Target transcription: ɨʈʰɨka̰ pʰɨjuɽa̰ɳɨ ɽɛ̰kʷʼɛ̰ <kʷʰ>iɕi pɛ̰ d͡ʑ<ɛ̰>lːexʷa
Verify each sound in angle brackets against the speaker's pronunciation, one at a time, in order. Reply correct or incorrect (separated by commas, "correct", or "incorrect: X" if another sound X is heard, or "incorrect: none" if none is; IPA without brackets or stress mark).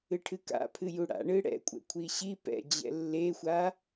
correct, correct